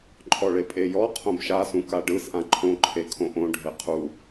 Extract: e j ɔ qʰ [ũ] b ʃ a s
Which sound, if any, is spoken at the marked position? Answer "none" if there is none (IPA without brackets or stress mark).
õ